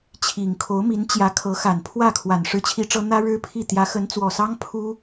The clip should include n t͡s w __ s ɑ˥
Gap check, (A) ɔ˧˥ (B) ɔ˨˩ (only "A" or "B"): B